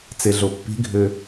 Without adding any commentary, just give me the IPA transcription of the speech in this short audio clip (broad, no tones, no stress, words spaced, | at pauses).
t͡seɮopːi̤ɡʱø